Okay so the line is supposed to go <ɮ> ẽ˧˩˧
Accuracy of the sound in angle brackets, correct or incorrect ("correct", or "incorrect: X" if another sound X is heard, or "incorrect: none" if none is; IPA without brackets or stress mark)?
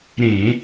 incorrect: ɾ